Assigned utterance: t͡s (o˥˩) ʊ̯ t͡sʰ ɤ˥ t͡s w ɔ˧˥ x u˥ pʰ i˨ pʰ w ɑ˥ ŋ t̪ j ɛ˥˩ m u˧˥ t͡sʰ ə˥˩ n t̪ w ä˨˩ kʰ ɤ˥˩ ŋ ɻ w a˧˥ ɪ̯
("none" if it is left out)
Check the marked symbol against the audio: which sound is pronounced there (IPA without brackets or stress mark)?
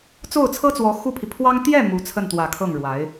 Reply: o˥˩